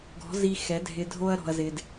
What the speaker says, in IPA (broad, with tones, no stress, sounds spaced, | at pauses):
ɡ ɔ̤˨˦ z i˧ x ɛ˨˦ dʱ ɪ˧ dʱ o˦ ɐ̯ ɾ ɔ̤˧ ɐ̯ z ɪ˧ d